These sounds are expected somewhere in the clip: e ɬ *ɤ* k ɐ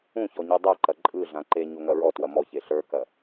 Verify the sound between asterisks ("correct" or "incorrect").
incorrect